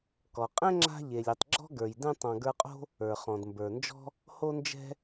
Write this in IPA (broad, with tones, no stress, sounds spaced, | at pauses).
k ɔ˩ qʼ ɛ̃˥ ŋ͡ǁ a̤˦ ʎ e˩ lʲ e˨ tˤ ɡ͡ǁ ɔ̤˥ ɡ ə˞˩ j d ɛ̃˦ tˤ ɔ̃˨ ɡ ə˞˦ qʼ o̤˥ | ə˞˩ χ ɔ̃˩ d m b ə˞˩ n d͡ʒ ɔ̤˥ | h o˦ n d͡ʒ ɛ̤˦